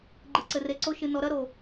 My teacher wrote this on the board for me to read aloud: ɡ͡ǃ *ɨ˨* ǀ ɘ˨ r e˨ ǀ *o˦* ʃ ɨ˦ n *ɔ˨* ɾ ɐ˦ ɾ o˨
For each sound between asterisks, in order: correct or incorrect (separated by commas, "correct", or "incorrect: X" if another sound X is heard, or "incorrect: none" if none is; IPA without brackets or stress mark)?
correct, correct, incorrect: ɔ˦